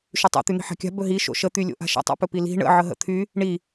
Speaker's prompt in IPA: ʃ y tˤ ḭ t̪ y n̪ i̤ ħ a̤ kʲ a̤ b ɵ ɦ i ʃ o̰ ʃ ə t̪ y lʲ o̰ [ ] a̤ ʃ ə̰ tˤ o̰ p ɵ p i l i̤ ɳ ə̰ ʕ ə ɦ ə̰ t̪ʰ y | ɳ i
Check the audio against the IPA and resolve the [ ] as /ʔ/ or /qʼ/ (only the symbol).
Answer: ʔ